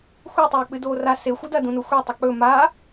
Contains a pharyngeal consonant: no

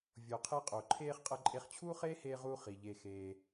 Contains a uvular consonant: yes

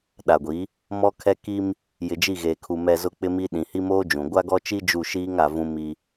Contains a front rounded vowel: no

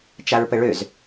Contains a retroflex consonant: yes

